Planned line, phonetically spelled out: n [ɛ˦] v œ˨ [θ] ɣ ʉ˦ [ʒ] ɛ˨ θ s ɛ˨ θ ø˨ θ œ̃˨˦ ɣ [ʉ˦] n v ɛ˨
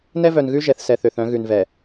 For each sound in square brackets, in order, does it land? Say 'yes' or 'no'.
yes, no, yes, no

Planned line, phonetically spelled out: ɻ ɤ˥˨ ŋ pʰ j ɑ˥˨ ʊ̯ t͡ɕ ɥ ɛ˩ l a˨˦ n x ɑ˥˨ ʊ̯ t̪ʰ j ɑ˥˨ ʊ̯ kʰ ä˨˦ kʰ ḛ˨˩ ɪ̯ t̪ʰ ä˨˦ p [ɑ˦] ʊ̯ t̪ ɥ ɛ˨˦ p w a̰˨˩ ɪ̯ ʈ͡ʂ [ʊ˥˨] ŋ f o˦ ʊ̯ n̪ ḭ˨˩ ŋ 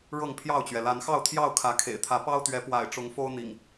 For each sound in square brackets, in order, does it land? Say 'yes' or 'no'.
yes, no

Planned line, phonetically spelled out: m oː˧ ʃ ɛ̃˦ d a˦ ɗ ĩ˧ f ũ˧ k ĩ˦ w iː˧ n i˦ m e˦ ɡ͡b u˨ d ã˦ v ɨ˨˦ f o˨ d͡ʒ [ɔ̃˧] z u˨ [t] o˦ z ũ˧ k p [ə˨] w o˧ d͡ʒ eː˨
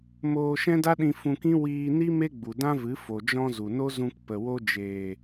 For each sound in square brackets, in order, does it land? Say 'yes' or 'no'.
yes, no, yes

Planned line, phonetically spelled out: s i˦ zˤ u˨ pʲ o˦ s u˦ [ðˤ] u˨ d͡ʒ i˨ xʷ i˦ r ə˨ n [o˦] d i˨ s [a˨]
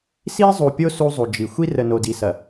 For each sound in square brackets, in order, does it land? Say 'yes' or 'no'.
no, no, no

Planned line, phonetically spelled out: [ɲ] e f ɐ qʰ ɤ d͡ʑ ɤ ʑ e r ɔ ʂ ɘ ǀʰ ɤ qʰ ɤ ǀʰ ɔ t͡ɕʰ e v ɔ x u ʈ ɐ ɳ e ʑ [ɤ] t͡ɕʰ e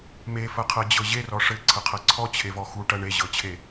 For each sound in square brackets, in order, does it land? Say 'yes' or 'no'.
no, yes

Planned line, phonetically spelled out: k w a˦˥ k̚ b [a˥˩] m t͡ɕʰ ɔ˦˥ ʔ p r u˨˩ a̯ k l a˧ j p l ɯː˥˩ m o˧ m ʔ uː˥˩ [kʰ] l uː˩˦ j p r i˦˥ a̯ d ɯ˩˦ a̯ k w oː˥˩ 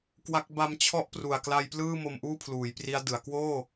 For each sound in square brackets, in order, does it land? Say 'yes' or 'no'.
no, no

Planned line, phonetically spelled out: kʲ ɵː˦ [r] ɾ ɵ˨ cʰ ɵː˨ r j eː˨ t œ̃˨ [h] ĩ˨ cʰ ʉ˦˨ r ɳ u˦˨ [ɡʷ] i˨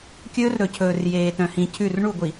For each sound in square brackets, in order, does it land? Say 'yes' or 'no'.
yes, yes, yes

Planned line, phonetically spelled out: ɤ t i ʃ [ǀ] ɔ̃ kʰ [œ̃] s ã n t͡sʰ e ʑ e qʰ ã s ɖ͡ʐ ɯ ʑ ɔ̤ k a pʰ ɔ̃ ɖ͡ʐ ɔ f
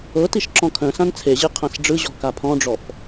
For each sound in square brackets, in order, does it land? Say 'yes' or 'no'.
no, yes

